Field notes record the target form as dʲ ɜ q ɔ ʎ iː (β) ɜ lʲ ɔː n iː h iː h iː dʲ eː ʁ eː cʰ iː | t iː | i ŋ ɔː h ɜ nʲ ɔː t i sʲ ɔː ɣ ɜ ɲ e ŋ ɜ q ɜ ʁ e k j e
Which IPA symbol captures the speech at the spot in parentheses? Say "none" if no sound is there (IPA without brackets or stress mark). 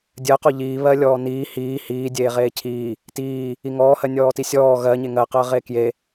β